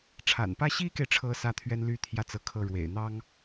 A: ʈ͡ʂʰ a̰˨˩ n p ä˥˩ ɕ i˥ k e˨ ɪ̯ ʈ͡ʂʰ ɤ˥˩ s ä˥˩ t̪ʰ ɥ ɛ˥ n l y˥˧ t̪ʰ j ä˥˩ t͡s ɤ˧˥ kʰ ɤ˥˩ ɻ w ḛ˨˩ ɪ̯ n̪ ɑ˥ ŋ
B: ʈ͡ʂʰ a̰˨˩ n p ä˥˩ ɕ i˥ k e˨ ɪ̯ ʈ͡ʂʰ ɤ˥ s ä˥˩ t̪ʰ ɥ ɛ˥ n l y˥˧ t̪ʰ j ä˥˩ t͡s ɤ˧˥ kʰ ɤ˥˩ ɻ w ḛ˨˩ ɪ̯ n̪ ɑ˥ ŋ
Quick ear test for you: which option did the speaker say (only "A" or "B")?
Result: B